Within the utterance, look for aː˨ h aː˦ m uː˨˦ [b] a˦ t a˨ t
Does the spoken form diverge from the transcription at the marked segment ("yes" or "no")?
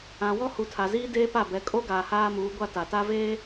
yes